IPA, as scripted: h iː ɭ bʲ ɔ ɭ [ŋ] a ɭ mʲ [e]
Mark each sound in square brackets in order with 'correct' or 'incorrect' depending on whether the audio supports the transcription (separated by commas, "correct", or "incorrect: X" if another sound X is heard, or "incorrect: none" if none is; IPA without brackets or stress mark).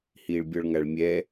correct, incorrect: ɛ